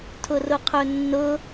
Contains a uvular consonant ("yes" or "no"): yes